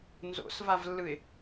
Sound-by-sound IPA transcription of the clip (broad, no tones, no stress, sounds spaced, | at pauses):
n z o̰ s v a v lː ɯ ɪ̯